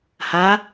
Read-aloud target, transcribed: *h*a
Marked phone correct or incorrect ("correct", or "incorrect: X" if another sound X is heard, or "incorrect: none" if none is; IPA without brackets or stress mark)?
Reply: correct